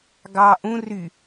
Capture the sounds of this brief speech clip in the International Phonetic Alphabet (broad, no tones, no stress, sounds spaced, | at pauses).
ɡ ɑ ʔ ũ r y